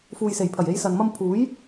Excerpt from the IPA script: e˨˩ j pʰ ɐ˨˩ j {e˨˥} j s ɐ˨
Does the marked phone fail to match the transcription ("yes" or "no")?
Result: yes